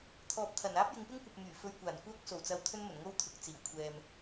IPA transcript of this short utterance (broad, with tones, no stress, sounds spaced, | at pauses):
t̪ʰ ɔː˨ p̚ t̪ʰ ɐ˨˩ n aː˥ p̚ j ɪ˨˧ ŋ p ɪ˥ ŋ kʷ ɐ˨ p̚ m yː˨˩ f ɵ˧ ɥ kʷ aː˨˩ n kʷ œː˥ k̚ s o˨˩ w t͡s ɐ˧ w t̪ʰ ɵ˥ n m ɵ˨˩ n ŋ o˥ w t̪ʰ ʊ˨˥ k̚ t͡s iː˨˩ w kʷʰ ɛː˧ m